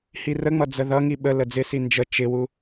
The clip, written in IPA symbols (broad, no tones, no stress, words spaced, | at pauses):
hirəŋ͡mʌ d͡zəðʌŋi ɓə ləd͡zɪsi nd͡ʒə t͡ʃɪwu